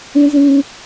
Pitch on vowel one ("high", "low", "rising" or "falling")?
high